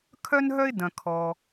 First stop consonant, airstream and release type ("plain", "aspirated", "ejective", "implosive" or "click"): aspirated